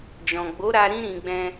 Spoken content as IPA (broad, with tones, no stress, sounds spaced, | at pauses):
d͡ʒ ɔ̃˨ ɡ͡b o˨˦ ɾ a˧ ɾ ĩ˦ ɾ ĩ˧ ɡ͡b ɛ̃˧